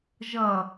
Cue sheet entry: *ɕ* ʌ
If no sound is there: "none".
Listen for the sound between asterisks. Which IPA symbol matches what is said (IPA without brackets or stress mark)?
ʒ